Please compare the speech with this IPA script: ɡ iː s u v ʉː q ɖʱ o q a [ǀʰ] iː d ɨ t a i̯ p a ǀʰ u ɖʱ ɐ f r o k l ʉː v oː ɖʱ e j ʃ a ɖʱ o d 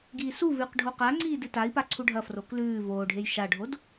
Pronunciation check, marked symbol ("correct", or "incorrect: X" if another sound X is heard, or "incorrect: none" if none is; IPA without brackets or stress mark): incorrect: ŋ͡ǀ